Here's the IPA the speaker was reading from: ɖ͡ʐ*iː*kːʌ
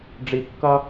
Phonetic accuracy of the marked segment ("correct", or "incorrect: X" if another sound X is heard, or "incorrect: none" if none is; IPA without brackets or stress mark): incorrect: i